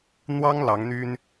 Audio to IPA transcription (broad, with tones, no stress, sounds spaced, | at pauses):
n̪ w ɑ˥ ŋ l ɑ˧˥ ŋ n̪ y˥ n